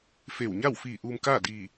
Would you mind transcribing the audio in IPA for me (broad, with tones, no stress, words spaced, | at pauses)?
fe˧˩wɲa˥˨w fiː˧˩ ʔuː˧mkaː˥˨ diː˧˩